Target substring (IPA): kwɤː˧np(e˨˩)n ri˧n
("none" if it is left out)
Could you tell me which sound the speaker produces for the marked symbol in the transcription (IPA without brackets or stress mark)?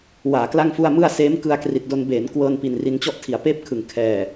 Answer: i˨˩